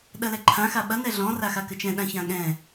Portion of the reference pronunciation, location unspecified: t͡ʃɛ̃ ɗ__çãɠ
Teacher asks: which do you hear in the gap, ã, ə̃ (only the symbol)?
ã